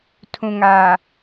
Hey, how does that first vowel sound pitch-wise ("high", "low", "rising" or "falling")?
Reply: low